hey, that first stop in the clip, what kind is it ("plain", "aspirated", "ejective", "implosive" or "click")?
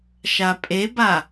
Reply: ejective